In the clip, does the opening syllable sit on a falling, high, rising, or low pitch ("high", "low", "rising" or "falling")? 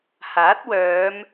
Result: rising